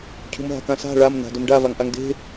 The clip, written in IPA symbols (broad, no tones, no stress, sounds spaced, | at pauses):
cʰ ṳ m ɦ a̤ k ã s a̤ ɭ a m n a̤ d ɵ m ɖ a v a ŋ ʔ a ŋ d e̤